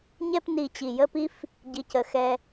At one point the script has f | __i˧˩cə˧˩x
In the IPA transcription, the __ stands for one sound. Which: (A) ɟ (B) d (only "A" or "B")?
A